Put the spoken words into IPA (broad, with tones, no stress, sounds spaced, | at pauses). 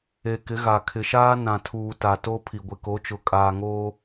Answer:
e˨ k ɪ˨˦ ɣ a˨ kʰ ɪ˨ ʃ aː˦ n ã˨ tʰ uː˨ t a˨ t o˦ pʰ i˨ ɡʷ ɪ˨ k o˨˦ t͡ʃ ʊ˨ kʼ aː˨ ŋ oː˦